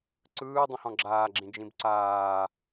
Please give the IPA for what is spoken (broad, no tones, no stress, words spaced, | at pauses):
ǀɯːdˤĩhɔ̃ ɡ͡ǁaːɡ͡ǁĩd͡ʒĩb ǀaː